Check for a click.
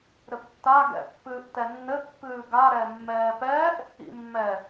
absent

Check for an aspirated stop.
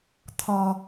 present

